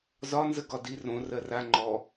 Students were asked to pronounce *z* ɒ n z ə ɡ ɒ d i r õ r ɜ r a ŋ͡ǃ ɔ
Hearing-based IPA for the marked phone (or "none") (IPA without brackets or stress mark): z